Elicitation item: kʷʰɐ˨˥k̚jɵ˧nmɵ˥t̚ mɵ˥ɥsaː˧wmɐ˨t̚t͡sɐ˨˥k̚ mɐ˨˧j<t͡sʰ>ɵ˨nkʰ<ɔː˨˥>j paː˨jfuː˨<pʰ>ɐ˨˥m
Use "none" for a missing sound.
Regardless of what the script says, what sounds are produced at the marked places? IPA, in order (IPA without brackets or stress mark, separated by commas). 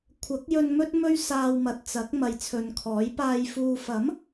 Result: t͡sʰ, ɔː˨˥, f